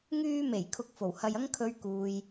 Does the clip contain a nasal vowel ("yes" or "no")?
no